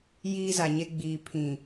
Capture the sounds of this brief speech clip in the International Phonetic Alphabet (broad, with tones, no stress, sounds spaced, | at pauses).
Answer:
j iː˦ z a˨ ɲ e˦ ɡ͡b iː˨ pʰ ĩ˨